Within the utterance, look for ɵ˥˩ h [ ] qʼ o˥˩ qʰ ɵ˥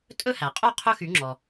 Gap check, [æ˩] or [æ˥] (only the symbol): æ˩